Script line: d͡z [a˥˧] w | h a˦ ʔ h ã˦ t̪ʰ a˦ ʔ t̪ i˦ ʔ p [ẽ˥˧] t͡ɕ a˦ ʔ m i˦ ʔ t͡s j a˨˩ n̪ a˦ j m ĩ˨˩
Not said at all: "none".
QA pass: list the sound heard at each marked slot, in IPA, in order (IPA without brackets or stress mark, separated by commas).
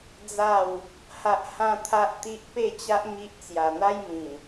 a˥˧, e˥˧